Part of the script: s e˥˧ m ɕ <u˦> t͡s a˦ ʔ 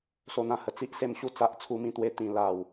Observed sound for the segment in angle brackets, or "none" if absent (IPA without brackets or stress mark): u˦